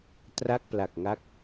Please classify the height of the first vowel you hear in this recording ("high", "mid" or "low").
low